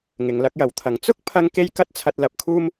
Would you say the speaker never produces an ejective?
yes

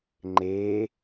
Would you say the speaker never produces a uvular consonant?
yes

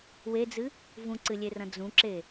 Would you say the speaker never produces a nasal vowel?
no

